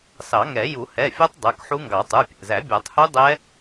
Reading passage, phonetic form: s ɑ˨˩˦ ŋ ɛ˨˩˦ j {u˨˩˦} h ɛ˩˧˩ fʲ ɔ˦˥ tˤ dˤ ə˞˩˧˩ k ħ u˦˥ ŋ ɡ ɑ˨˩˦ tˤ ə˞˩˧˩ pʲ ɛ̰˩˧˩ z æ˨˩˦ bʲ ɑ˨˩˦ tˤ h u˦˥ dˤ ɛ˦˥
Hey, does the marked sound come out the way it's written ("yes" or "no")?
yes